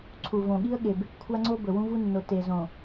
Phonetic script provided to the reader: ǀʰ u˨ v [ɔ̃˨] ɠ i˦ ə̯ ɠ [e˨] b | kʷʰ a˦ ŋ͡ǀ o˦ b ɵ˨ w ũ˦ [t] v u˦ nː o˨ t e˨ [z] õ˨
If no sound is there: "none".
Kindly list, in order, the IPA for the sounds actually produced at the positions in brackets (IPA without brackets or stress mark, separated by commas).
õ˨, e˨, none, z